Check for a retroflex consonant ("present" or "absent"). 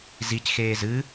absent